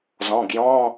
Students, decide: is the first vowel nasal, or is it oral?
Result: nasal